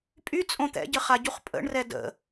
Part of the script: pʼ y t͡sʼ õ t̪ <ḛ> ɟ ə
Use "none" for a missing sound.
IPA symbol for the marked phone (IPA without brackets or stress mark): ɛ̰